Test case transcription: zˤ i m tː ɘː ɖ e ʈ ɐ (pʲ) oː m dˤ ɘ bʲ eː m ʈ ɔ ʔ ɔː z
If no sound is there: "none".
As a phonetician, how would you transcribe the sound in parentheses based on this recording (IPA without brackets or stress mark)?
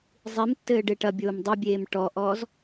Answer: bʲ